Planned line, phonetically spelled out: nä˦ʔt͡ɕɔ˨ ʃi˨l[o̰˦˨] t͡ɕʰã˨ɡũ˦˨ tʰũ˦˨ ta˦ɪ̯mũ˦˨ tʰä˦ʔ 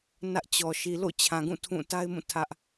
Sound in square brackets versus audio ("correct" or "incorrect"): correct